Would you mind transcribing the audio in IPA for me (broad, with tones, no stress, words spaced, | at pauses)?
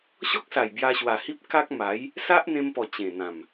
ɕɔ˦k̚sa˨˩j bja˧ɕwa˨˩hi˦p̚ ka˦k̚ma˨˦j | sa˦ʔn̪ẽ˧mpɔ˨˩ t͡ɕẽ˨˩n̪ã˨˩m